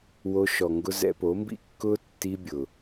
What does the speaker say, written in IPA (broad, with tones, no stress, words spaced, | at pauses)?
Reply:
wo˧ʃɔ˨ŋɡʊ˧ zɛ̰˧po˨˦mbḭ˦ kːʊ˦ tːi˧bʲʊ˨